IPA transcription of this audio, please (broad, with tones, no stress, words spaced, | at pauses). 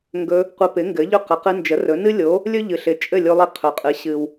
ŋɡɵ˧ | qʷɘ˧pɪ˩˥ŋɡɘ˩˥ʎɵ˥˩ qɘ˩qɨ˧ nd͡ʒə˩˥rɵ˩˥ nɨ˥lʲo˩˥ | lʲɵ˥ʎɨ˩ɬɪ˩˥ t͡ʃʼɘ˥˩lʲo˧lˠi˧ qʰɵ˩˥qʼɨ˩˥ ɕɨ˩w